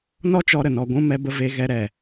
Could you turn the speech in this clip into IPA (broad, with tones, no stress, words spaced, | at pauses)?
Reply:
nɔ˦ t͡ʃɔ˦ɾə˨nɔ˧ ɡʷũ˧ mɛ˧ bə˦ ve˧ɣɛ˧ɾɛ˨